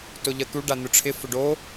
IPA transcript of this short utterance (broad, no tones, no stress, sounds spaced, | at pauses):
t ʊ ʎ ə t̪ u ɖ a n̪ ʊ ʈ͡ʂʰ ɪ f ʊ ɖ o